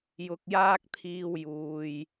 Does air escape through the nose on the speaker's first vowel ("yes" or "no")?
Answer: no